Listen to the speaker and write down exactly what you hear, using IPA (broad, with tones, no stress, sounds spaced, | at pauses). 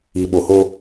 i˨ ɓ o˨ h o˦